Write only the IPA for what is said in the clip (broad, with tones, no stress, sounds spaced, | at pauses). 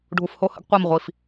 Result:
ɖʱ u˧ f h o˥˧ h ə̰˥ ɡ qʷ a˥˧ m ʁʷ i˧ f